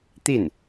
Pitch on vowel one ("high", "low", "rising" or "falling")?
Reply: falling